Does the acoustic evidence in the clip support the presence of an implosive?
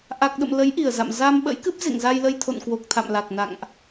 yes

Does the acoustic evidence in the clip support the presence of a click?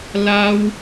no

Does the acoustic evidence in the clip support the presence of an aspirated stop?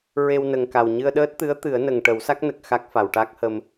no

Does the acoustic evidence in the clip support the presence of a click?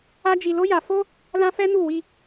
no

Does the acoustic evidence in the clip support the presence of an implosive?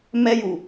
no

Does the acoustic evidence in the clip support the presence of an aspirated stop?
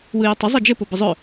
no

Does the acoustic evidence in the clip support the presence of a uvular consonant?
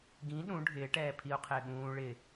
yes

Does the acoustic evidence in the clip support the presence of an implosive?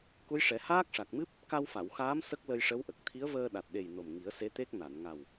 yes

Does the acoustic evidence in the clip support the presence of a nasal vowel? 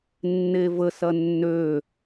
no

